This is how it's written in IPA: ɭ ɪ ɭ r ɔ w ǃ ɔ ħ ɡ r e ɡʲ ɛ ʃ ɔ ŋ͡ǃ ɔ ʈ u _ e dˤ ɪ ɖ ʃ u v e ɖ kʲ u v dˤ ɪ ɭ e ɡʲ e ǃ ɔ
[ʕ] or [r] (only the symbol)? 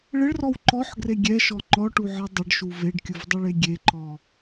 ʕ